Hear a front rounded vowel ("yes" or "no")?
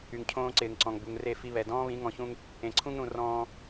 yes